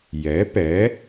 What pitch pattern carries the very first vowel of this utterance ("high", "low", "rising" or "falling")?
rising